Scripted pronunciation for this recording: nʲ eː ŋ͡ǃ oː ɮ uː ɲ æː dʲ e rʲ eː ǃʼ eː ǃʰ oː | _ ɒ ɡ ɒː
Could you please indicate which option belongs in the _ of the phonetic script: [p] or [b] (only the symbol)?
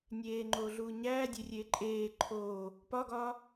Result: p